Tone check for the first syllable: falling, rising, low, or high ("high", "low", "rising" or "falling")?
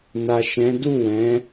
low